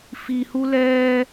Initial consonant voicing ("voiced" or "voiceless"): voiceless